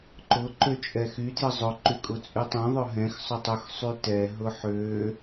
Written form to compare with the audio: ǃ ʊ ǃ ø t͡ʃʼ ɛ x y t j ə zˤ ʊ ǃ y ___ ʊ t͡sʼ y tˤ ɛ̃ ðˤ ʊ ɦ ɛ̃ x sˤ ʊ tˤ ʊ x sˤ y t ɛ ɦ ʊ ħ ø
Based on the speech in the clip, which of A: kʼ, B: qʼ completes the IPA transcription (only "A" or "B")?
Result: A